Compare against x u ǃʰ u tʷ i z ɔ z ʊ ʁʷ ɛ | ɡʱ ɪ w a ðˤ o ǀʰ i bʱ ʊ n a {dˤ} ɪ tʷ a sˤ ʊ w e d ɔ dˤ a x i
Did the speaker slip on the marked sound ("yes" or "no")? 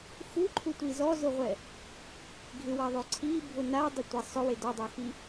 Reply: no